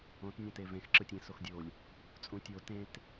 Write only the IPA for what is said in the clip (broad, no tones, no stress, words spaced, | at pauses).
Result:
õt nʲɛ̃tevẽx ǁɯtʲẽ soxdʲolʲ | t͡sʼũtʲo tẽt